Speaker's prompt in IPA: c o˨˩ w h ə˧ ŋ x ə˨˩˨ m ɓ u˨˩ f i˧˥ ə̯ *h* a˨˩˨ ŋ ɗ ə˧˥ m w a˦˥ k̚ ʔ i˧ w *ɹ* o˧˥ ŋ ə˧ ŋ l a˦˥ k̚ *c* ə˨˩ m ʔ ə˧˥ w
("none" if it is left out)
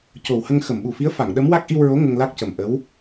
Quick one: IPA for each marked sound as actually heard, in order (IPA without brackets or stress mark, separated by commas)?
f, ɹ, c